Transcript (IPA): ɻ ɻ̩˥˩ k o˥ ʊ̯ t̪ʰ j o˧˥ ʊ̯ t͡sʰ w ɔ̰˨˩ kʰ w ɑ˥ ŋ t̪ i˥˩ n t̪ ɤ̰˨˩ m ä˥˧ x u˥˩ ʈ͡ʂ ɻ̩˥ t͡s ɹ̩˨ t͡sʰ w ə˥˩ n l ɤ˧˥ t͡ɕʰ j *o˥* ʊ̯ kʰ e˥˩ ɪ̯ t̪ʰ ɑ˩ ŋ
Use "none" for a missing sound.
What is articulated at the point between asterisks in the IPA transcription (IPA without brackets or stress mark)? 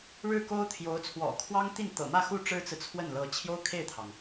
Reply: o˥